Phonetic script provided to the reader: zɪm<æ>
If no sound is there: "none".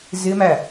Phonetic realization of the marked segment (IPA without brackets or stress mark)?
æ